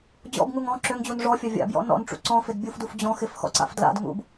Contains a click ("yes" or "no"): yes